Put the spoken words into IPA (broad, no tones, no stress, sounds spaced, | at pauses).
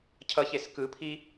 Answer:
cʰ ʌ ç e s k ɯ pʰ i